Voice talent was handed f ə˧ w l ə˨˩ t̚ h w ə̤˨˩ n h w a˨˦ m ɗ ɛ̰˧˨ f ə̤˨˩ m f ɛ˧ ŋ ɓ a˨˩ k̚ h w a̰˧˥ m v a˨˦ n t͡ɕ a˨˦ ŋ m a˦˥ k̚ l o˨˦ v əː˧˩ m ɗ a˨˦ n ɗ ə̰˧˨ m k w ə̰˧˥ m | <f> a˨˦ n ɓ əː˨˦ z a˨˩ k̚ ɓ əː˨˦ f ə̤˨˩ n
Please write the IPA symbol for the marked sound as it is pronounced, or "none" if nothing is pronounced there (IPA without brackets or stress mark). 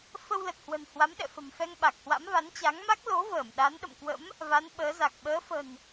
v